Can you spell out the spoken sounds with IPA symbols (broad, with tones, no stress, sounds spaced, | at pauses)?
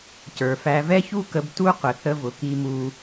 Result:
c ə˞˨ f æ˧ v ɛ˦ ç u˦ k ə˧ b t u˦ qʷ ə˨ θ ə˧ v ʊ˨ k i˧ m u˦